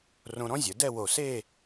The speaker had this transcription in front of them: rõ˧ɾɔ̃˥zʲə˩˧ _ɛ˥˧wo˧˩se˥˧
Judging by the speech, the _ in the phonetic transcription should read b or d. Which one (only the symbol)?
d